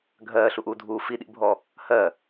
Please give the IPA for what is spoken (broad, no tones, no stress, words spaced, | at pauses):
ɡʱɜːɬuʔuːdʱuː fiɗḭbʱɔ | hɜ